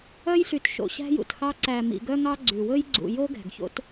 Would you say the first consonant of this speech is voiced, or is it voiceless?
voiced